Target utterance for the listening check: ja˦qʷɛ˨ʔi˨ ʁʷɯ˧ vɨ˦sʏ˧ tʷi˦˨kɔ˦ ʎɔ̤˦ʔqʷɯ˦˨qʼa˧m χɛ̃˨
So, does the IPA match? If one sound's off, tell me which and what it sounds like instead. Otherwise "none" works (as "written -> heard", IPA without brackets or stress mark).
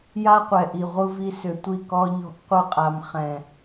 ɨ˦ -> i˦